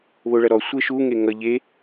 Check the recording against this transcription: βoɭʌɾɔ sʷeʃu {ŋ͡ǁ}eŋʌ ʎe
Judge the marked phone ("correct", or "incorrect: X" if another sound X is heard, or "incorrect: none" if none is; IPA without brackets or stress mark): incorrect: ŋ